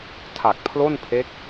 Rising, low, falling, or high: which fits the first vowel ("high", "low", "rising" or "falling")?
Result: low